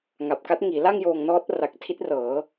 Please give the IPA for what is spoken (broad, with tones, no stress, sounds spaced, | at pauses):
ŋ a˨˩ p̚ k a˦˥ t̚ ŋ iː˩˦ l a˥˩ ŋ j oː˧ ŋ n ɔː˦˥ t̚ r a˨˩ k̚ tʰ i˦˥ t̚ r ɤː˩˦